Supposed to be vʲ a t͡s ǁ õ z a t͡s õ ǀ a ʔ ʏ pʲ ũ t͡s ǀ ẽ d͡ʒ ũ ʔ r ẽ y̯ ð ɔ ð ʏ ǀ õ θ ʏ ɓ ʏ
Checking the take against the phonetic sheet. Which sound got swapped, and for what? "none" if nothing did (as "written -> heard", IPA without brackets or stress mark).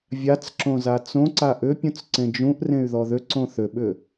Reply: none